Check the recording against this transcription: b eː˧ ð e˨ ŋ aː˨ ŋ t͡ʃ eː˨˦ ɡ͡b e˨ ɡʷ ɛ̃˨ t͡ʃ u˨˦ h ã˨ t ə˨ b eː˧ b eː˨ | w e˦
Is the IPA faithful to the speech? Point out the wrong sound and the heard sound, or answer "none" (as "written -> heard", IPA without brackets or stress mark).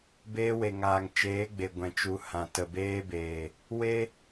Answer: ð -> w